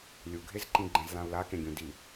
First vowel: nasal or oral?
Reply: oral